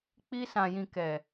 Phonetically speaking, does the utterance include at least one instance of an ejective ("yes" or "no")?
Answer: no